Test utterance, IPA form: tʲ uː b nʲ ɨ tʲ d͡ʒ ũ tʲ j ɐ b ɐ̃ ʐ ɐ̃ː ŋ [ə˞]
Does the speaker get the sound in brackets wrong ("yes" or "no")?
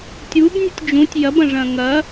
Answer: yes